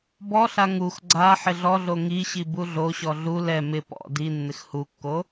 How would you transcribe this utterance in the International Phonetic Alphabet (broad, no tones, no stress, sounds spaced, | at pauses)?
b ɔ ɬ a ŋ u x ɡ͡ǀ a ħ ɪ ɮ ɔ ɮ o ŋ i ɕ i b u ɮ o ɕ ɔ ɮ u l ɛ m ɪ p ɔ̰ d i nː ɪ x h u kː o